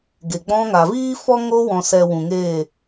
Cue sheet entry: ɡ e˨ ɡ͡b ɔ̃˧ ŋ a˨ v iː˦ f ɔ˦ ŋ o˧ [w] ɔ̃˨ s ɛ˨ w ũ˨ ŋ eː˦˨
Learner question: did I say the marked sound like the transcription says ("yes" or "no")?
yes